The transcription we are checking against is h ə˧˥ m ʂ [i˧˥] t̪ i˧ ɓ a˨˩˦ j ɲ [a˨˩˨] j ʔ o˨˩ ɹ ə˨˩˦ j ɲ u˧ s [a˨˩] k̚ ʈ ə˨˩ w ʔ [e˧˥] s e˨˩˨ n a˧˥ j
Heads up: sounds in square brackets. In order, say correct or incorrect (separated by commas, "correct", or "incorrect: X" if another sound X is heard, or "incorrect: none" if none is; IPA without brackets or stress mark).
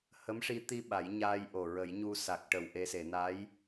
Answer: correct, incorrect: a˧, correct, incorrect: e˧